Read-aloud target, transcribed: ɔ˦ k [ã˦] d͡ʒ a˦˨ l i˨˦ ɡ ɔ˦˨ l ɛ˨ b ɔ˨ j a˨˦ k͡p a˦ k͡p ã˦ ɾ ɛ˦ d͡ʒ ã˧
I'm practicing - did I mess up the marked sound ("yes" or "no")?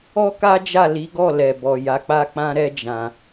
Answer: yes